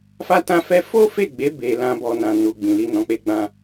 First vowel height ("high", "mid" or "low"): low